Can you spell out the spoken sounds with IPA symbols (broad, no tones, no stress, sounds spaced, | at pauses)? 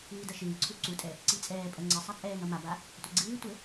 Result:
ɨː d ɐ ʃ ɨː ǀʰ u ǀ u tʼ ɛ | ǀ i t͡sʼ ɛː pʼ ɐ ŋ͡ǀ ɘ sˤ a t͡sʼ ɛː ŋ ɐ m a b a | tʷ ɘ ɡ͡ǀ ɨː tʷ ɘ